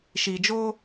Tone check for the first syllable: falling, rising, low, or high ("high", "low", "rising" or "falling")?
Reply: low